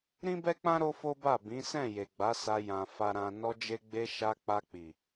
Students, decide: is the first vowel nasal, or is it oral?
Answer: nasal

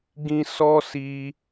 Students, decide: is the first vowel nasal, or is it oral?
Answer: nasal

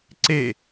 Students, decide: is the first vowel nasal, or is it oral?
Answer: oral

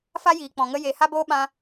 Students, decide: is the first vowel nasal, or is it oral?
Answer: oral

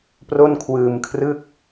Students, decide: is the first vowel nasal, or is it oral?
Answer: oral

